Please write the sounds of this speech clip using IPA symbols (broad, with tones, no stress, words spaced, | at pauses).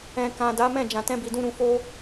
ɛ̃˨kã˨ da˨˦mɛ̃˦˨ d͡ʒã˨tɛ̃˧bi˨dũ˧ ɾũ˨fo˧